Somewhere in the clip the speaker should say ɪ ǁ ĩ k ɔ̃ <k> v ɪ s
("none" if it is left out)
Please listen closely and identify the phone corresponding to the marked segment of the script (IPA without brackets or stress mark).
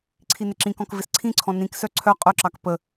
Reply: k